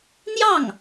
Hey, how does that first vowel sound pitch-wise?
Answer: falling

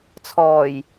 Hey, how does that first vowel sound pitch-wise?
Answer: low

